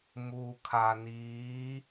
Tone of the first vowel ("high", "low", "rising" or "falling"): low